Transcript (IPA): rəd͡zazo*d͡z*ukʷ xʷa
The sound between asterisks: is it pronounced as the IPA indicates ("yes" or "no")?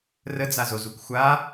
no